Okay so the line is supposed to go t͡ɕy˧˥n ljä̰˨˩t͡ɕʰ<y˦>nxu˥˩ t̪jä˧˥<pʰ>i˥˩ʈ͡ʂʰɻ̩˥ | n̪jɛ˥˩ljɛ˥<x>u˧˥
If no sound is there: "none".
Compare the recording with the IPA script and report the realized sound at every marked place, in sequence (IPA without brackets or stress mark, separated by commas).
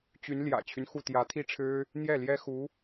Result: y˦, t̪ʰ, x